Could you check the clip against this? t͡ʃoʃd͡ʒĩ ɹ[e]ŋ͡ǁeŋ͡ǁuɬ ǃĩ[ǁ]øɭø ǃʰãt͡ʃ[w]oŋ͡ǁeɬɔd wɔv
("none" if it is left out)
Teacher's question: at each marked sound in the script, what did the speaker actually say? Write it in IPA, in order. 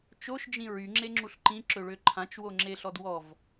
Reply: y, ǁ, w

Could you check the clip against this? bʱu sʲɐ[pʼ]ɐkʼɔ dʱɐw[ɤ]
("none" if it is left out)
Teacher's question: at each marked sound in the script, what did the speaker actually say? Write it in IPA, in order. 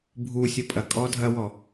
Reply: pʼ, ɔ

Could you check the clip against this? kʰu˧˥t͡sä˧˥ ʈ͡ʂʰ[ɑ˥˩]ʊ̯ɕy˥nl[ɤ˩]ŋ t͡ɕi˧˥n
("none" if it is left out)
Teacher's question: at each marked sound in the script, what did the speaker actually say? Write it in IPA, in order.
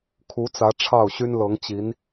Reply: ɑ˥˩, ɤ˧˥

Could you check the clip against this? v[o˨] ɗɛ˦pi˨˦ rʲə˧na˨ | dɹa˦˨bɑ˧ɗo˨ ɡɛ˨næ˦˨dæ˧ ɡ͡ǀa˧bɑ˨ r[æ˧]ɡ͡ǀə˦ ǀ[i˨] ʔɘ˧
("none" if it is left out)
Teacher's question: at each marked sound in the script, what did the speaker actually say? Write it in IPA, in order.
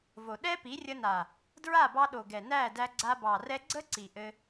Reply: o˨, ɛ˧, i˨

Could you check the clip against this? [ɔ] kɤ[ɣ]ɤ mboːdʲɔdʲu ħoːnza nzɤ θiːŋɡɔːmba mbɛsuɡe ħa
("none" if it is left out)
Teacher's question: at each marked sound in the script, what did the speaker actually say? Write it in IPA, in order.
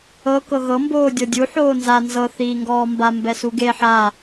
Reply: ɤ, ɣ

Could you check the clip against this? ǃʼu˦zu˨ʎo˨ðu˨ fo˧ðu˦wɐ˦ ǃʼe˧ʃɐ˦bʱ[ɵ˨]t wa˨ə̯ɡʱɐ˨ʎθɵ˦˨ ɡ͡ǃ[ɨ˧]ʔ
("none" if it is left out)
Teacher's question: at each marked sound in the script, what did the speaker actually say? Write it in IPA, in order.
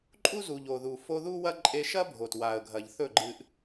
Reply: o˨, ɨ˧

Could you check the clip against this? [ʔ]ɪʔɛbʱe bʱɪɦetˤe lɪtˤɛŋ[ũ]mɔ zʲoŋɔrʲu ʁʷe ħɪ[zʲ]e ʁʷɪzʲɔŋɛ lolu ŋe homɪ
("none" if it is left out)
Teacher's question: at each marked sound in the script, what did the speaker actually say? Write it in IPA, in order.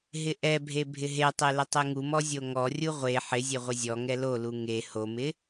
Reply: ɦ, u, zʲ

